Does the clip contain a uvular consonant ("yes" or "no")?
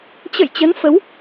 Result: no